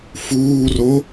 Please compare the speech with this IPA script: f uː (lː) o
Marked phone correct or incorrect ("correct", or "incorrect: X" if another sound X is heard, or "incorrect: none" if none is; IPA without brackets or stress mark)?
incorrect: r